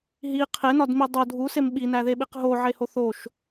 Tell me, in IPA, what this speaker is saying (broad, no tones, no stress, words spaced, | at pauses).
ɦi qʰenɒdmi dˤo dʱusem ɓinæðeɓiq ɦoʕeho θoʃ